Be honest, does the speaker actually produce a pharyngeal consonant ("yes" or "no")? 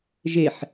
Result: yes